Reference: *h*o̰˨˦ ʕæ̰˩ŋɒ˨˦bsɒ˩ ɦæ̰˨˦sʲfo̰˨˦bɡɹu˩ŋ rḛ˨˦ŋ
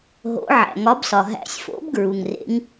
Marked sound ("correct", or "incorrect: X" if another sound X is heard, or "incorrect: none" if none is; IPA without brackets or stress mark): incorrect: ɦ